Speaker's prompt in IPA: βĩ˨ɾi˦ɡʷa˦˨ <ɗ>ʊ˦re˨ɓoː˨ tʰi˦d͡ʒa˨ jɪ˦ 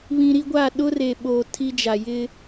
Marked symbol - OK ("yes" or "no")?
yes